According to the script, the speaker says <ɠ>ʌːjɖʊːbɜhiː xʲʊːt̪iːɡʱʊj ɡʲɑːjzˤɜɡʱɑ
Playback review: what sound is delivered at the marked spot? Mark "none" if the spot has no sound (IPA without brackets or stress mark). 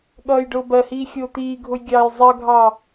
ɠ